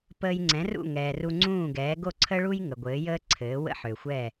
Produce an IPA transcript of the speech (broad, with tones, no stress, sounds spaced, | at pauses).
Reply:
p əː˧ j ŋ͡ǀ ɛ̃˩˥ r ṵ˥˩ ŋ ɛː˩ r u˧ ŋ͡ǀ ũː˥˩ ɡ ɛː˩˥ ɡ o˥˩ ǀʰ ə˥ ɭ u˥ j ŋ ə˩ ɡʷ ɘː˩˥ j əː˥ ǀʰ ɘː˩˥ w ə̰˥ ħ ø˩ xʷ ɛ˥˩